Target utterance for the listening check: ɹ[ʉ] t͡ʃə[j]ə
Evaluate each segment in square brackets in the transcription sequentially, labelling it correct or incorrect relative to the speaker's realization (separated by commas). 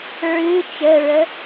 correct, incorrect